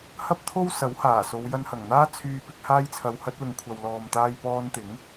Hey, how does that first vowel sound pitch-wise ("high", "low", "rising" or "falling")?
high